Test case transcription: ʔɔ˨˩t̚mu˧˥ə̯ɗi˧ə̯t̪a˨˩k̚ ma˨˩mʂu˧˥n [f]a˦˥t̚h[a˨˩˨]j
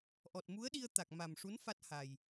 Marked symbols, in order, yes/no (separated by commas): yes, no